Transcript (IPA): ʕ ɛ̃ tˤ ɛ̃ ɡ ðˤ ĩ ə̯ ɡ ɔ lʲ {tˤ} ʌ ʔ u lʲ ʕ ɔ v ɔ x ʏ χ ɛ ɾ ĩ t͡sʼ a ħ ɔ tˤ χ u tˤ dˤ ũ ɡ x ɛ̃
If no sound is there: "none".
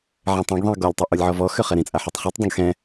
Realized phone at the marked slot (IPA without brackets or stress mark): tˤ